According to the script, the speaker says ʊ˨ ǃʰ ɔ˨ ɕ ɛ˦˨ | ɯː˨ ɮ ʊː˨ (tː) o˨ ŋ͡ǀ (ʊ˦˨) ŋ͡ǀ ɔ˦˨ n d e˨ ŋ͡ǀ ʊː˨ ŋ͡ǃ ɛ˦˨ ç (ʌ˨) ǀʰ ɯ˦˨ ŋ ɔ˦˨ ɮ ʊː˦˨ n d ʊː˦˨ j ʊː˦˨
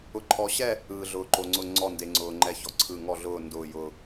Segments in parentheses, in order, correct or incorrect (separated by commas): incorrect, correct, incorrect